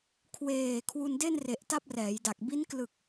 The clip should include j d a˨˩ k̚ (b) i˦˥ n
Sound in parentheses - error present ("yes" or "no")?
no